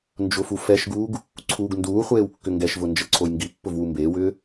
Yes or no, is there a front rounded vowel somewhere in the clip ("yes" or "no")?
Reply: yes